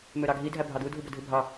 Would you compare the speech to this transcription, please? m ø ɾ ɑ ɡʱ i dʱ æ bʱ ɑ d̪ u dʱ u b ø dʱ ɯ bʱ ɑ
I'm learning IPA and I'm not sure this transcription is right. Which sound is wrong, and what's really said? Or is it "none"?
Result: none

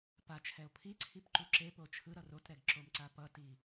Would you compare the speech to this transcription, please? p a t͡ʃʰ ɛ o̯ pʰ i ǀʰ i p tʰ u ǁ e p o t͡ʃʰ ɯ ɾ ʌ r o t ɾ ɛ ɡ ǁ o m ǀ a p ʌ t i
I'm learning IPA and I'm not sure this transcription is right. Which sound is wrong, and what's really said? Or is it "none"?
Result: tʰ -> ǃ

